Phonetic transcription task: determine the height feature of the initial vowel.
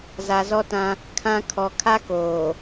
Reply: low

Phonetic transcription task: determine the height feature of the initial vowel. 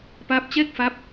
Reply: low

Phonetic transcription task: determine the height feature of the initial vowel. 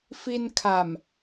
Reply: high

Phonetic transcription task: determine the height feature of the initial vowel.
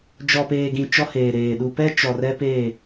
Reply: mid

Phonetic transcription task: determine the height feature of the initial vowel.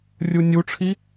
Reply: high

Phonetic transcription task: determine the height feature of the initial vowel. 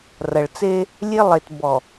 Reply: low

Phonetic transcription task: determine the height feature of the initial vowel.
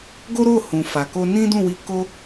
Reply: mid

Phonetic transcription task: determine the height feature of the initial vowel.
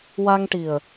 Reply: low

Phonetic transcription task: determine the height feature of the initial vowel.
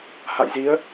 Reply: low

